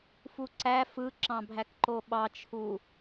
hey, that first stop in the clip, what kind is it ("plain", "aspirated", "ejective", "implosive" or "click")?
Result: click